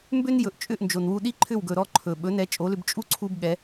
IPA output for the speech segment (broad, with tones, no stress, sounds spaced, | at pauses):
m b ʏ˥ n j ɵ˩ ʔ t͡ʃʼ ʏ˥˩ ʔ n d͡ʒ o˩ n w u˧ ɗ i˥ ǃʰ ʏ˥˩ w ɡ ɵ˩ ɾ ɔ˥˩ ǃʰ ɵ˩ ɓ ɵ˩˥ n ɛ˩˥ t͡ʃʼ o˩˥ l ʏ˧ b t͡ʃʼ u˥ ǀʰ u˥ b ɠ ɛ˩˥